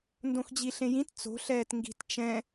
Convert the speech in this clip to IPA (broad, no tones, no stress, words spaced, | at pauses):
ndõxd͡ʑiɬẽjĩt t͡so̤ ɬɛːtŋɡi̤t t͡ʃɛ̃